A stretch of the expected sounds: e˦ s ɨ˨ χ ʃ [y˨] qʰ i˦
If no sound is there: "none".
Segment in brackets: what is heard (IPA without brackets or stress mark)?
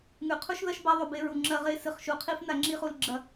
u˨